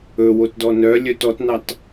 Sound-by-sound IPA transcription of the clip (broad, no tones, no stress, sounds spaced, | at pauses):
ɵ w o t d ɔ n œ lʲ œ t ɔ t n ɑ t